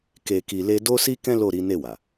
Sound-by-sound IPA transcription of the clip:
ke˧ki˧le˦ do˦si˦kɛ̃˦ lo˦˨ɾi˨˦ ne˦˨wa˨

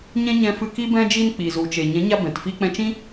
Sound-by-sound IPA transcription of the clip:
ɲɛ̃˦ɲɛ̃˧ fɨ˧ki˦ bɛ̃˧d͡ʒi˧n k͡pi˨zu˨t͡ʃe˨ ɲɛ̃˨˦ɲa˧ bɛ̃˨tfi˦ k͡pɛ̃˧t͡ʃĩ˦

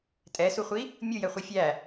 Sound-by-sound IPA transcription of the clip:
tʼɛsuχʷi | mʲujɛχʷi fʲæ

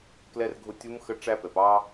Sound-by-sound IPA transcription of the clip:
klɛ˧r ɡʱʊ˧tʲu˧˥m xə˧ʈ͡ʂæ˧pɛ˩p ɑ˧

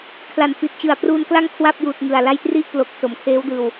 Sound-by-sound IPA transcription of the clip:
kʰla˨˩n fi˨˩t̚t͡ɕɯ˨˩a̯ pruː˧nkla˥˩ŋkʰwa˥˩p̚juː˨˩t̚ ŋɯ˨˩a̯ la˧jtri˥˩ʔplo˨˩k̚ so˩˦mkʰeː˦˥w dɯː˨˩w

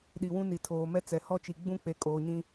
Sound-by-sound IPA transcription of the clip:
ɗi˨wũ˦ni˨ tʰoː˨mɛ˦ t͡sɛ˨hɔ˦t͡ʃi˨ ɡ͡bũ˦k͡pe˨kʼoː˨ɲĩ˦

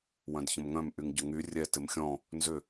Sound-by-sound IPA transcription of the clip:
wœ̃dçə̃mŋœ̃m ʔyŋɟʊŋy rʲɛ tɪmxʲɔ̃ | nzʏ

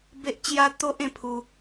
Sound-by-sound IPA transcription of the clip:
be˦ʔt͡ɕja˦ t̪o˦ʔ ẽ˦pʰu˧

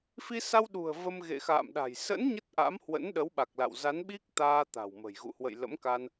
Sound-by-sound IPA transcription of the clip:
fi˧sa˧wɗṳ˨˩ə̯ və˧m ɣḛ˧˨xa̰ː˧˨mɗa̤˨˩j sə̰˧˥n ɲə˦˥t̚ʔa̰˧˥mhwə̰˧˥n ɗə˨˦w ɓa˨˩k̚la̰˧˨wza˨˦nɓi˦˥k̚ t̪aː˧t̪a̤˨˩wmə̤˨˩j ɣṵ˧˨hwə̰˧˨j lə̰˧˥mka˧n

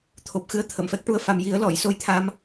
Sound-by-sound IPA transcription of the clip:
t̪ʰo˨˩p̚ xɨ˧ə̯t̪ʰə˨˩˨mfɛ˦˥k̚ʈu˧ə̯ fa˨˩mji˨˩˦ə̯ lɔ˨˩˨j so˧jt̪ʰa˧m

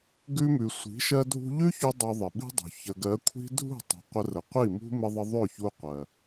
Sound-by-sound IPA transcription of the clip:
ɡʉ˧mʉ˨sʷi̤˨˦ ʃɜ˧dʱṳ˧ʎʉ˦çu˧ dˤʉ˧ðˤɪ˨ɓi̤˦dˤṳ˨ çə˨ɡɜ˨˦kʷʰi̤˦ dʱṳ˦˨ tˤṳ˨qʷə˧ rə˨qʷi˦˨mṳ˦ mɪ˧ðˤə˧ ðˤø˦˨çu˧qʷɜ˨

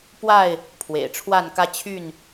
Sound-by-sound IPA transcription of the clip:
pwa˥˨ɪ̯ | pʰwḛ˨˩ɪ̯ʈ͡ʂʰwa˥˨nkä˦ t͡ɕʰy˥˨n

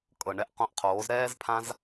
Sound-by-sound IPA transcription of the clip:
kʼɤ˨ɳɛ˦ʔqõ˧ʔqʰoː˨˦z ɾɛː˦zpʰã˦z

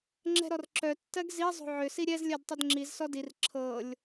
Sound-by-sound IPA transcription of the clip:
ŋ͡ǁɛ̤ɾɔrǁœ tːɜɡzi zˤo̤ʕʏ siɾʲɛz lʲɜdtˤʏdŋ͡ǁiz sɔdir ǁʰɤlʲ

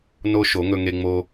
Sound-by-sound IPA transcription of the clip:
no˦ ʃo˨˦ŋɵ˧ŋe˧ ŋ͡mo˧

